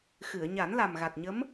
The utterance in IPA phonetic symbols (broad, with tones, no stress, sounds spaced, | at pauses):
x ɨ˨˩˨ ə̯ ɲ a˨˩˦ n l a˨˩ m ɣ a˨˩ t̚ ɲ ə˧˥ m